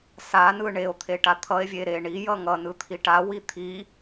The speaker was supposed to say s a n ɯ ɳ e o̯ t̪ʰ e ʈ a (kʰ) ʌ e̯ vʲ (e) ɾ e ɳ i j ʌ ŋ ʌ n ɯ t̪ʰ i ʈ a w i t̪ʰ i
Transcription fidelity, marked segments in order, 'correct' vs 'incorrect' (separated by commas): incorrect, correct